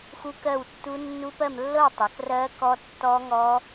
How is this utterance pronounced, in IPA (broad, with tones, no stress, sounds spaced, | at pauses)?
x u˦˥ k ɜ˥˧ w tː u˦˥ nː u˦˥ p ɜ˥˧ m lː ɤ˥˧ w tˤ ɤ˨˦ k r ɜ˦˥ k ɔ˦˥ tː ɔ˦˥ ŋ ɔ˦˥